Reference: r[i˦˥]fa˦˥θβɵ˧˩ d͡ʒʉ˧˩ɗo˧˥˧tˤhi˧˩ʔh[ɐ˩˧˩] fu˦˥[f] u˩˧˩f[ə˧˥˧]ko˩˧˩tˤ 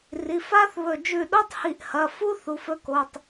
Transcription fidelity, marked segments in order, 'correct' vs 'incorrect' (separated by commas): incorrect, correct, incorrect, incorrect